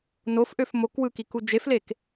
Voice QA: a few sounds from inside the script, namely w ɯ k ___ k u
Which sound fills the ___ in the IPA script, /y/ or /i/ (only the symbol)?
i